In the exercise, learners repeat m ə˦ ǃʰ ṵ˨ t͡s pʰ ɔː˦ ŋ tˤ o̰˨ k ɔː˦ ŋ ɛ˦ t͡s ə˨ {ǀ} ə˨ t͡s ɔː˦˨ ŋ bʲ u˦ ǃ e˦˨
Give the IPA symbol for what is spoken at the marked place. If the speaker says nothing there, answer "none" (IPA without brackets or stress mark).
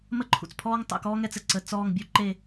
ǀ